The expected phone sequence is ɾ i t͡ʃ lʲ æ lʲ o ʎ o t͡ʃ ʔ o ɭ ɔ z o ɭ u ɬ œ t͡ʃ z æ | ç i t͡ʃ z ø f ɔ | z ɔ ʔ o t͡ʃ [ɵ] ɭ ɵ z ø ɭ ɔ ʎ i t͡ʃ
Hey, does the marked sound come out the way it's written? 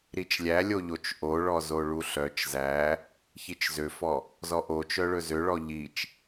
no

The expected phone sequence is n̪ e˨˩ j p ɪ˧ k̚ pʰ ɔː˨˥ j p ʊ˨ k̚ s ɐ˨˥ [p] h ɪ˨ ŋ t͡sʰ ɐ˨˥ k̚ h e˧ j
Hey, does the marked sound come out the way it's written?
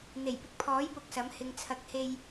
no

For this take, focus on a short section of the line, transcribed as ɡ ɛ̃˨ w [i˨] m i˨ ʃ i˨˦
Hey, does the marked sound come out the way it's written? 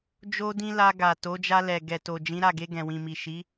no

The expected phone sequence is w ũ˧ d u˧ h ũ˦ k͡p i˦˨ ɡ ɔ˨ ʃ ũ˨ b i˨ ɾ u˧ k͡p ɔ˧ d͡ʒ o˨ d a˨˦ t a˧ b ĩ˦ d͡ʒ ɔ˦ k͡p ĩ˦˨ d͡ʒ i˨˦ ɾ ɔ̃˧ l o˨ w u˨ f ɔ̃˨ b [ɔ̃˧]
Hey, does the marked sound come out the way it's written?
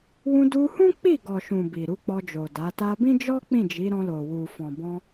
yes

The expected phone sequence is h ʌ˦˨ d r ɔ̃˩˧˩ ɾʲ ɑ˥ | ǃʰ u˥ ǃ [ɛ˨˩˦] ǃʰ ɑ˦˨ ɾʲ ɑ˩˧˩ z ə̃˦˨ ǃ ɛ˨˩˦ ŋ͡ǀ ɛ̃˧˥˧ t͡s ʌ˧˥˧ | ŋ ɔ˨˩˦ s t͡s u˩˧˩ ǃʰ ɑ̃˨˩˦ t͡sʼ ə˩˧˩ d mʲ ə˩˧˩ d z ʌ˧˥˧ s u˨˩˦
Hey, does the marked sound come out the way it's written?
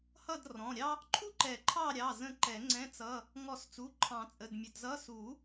yes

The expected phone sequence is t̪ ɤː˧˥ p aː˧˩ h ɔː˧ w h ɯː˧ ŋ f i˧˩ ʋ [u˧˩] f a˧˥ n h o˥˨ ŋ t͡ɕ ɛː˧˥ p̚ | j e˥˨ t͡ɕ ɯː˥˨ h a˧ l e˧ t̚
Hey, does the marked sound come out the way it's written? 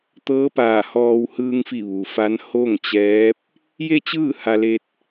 no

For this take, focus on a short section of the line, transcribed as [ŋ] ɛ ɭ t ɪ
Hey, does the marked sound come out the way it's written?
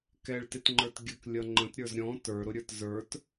no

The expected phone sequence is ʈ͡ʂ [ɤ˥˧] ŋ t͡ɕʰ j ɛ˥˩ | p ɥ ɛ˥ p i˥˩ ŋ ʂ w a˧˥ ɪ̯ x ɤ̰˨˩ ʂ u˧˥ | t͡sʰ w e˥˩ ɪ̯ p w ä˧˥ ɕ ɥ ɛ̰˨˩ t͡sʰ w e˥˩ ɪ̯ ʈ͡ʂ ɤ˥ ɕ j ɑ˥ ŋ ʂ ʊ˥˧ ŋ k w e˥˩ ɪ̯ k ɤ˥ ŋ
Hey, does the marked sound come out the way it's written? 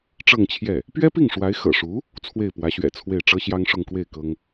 yes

